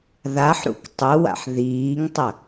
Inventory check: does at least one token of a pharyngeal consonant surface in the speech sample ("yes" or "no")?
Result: yes